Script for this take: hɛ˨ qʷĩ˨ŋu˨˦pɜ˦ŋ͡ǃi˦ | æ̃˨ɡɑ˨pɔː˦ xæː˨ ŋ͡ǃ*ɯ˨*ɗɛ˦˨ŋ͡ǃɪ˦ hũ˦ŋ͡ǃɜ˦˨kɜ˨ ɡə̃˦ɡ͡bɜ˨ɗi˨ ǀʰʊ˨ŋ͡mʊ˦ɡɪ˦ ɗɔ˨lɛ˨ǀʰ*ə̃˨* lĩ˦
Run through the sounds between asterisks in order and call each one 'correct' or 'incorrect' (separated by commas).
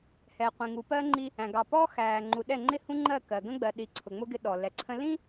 incorrect, incorrect